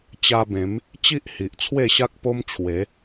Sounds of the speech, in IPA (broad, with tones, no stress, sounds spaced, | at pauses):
t͡ɕ a˧ b ẽ˨˦ m | t͡ɕ i˦ ʔ h i˨ ʔ t͡sʰ w e˥˧ ɕ a˦ k̚ p o˦ m t͡ɕʰ w e˨˦